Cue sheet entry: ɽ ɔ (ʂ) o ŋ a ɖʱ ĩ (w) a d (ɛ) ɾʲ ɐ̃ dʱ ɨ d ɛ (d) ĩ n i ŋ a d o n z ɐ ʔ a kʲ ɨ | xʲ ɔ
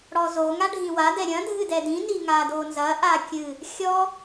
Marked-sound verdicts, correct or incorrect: incorrect, correct, correct, correct

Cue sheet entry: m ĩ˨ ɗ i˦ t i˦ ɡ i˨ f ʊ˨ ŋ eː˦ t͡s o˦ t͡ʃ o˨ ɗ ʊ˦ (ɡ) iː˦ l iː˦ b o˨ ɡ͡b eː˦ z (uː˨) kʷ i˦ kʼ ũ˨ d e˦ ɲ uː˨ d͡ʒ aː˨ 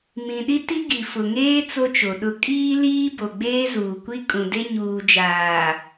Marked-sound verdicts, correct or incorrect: incorrect, correct

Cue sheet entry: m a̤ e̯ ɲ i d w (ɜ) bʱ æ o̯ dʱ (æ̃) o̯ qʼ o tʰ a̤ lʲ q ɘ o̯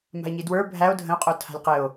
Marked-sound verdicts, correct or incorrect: incorrect, incorrect

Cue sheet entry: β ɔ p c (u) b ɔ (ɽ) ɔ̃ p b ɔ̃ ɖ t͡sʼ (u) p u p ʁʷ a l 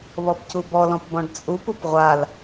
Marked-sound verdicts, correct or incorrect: correct, incorrect, correct

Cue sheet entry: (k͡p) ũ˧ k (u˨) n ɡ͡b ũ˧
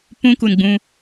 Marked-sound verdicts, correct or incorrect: incorrect, correct

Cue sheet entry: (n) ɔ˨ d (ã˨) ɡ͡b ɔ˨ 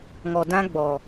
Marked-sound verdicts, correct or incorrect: incorrect, incorrect

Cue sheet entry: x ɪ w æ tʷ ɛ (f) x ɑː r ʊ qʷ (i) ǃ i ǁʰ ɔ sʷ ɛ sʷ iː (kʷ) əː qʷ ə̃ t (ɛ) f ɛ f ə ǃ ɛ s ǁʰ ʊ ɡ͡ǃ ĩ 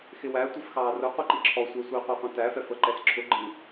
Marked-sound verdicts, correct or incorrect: correct, correct, incorrect, incorrect

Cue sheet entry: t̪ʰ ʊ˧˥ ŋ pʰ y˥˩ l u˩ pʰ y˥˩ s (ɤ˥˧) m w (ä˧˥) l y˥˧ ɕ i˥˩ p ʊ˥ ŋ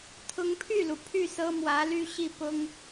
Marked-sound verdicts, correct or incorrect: incorrect, correct

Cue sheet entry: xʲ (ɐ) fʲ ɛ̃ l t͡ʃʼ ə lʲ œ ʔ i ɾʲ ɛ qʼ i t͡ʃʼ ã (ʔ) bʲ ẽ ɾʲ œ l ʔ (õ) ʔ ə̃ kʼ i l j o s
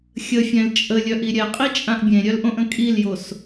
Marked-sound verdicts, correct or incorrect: incorrect, correct, correct

